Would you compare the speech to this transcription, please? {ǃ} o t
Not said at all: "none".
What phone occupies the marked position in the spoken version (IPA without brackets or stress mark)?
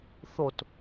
θ